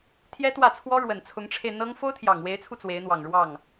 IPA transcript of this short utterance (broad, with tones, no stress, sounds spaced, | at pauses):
t̪ʰ j ɛ˥ t̪ w ä˥˩ t͡sʰ w ɔ˥ ɻ w ə˨˩ n t͡sʰ ʊ˧˥ ŋ ʈ͡ʂʰ e˧ ɪ̯ n̪ ɤ˥ ŋ f o˥ ʊ̯ t̪ʰ j ɑ˨˩ ŋ w e˧˥ ɪ̯ t͡sʰ u˧ t͡s w e˧˥ ɪ̯ n̪ w ɑ˨˩ ŋ ɻ w ɑ˥˩ ŋ